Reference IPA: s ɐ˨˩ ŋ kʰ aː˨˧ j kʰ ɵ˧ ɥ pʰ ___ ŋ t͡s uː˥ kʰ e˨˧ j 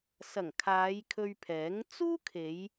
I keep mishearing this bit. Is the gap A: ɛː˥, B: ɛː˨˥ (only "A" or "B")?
B